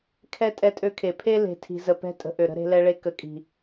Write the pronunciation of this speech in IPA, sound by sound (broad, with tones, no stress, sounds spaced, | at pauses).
kʰ ɛ˦ tʼ ɛ˦ tʼ ø˦ kʰ e˨ pʰ e˦ l e̤˨ tʰ i̤˨ z ə˨ p ɛ̤˦ tʼ ə̤˨ ʔ ø˨ ɾ ə̤˦ ɾ e̤˦ l ɛ˦ ɭ e˦ k ə˨ kʼ i̤˨